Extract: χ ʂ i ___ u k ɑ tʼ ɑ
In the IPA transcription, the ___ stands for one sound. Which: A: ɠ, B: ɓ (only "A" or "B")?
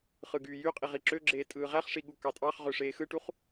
A